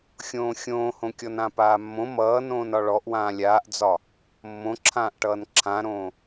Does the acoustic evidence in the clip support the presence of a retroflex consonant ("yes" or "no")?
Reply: yes